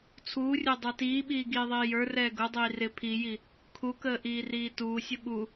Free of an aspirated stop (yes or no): no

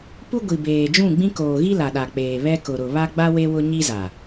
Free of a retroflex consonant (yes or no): yes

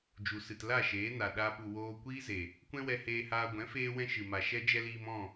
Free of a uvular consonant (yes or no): yes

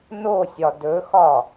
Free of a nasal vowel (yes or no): yes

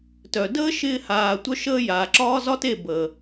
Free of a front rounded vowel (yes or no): no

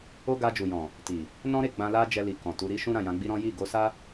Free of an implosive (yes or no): yes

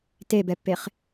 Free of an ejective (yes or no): yes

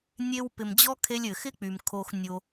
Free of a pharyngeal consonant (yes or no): yes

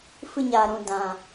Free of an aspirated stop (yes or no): yes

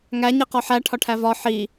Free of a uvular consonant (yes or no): no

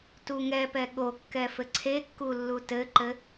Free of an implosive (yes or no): no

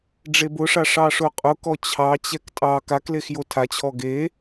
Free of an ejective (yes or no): no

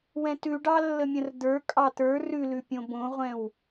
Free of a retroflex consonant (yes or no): no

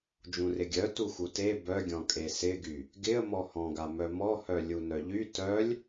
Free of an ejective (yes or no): no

